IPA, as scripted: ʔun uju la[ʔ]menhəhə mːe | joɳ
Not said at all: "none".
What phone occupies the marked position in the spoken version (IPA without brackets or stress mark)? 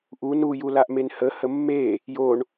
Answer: ʔ